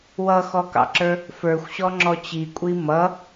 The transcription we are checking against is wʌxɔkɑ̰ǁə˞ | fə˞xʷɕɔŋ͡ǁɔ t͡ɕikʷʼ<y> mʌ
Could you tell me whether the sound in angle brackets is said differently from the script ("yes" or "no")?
yes